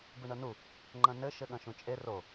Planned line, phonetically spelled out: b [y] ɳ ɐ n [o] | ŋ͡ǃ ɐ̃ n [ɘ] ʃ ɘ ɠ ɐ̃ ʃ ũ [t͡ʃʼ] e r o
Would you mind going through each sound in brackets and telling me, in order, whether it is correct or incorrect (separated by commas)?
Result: incorrect, incorrect, correct, correct